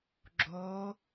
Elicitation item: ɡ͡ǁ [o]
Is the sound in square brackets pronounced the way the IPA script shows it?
yes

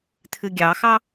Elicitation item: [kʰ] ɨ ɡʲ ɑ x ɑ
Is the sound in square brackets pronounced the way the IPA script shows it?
no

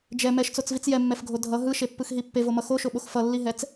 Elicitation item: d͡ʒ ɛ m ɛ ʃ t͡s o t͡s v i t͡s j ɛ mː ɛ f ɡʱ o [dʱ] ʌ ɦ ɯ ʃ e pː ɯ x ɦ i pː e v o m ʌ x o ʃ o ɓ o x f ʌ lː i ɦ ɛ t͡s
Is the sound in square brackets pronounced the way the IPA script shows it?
yes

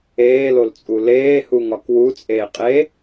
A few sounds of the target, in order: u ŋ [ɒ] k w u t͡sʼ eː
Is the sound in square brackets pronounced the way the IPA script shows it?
yes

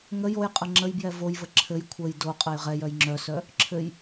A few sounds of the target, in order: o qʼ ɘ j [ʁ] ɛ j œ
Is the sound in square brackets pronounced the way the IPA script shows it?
yes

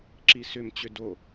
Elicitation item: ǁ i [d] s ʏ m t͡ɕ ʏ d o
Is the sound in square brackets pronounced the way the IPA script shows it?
no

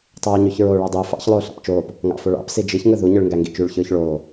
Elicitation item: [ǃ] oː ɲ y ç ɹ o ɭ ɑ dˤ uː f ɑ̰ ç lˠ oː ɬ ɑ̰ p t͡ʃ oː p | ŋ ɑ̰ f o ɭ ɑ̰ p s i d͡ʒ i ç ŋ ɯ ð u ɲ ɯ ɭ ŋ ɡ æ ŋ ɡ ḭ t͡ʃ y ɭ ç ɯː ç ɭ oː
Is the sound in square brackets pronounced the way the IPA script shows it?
no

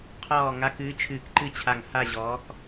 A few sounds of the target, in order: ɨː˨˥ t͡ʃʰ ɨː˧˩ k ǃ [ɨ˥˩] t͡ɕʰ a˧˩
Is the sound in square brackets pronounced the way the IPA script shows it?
yes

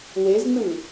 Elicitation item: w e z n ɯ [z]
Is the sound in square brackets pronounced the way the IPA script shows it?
no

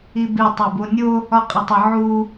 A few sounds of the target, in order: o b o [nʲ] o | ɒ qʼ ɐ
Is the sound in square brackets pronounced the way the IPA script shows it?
yes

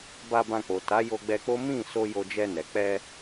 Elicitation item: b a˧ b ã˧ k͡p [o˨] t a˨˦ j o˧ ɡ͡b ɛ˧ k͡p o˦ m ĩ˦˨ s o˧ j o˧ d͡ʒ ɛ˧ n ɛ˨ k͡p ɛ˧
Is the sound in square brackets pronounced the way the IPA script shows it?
yes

